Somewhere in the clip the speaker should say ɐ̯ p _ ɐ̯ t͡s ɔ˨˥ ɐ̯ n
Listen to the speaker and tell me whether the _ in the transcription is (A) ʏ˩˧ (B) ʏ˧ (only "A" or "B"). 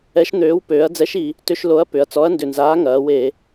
A